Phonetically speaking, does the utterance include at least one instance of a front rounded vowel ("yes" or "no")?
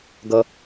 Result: no